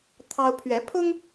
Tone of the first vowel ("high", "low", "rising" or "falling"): high